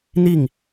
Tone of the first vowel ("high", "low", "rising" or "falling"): falling